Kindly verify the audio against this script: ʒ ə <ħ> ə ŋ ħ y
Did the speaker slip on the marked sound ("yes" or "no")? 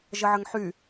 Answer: yes